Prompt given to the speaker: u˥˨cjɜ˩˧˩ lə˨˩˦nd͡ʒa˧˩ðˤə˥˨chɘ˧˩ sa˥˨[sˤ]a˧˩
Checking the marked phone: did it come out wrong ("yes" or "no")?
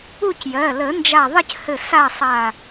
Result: no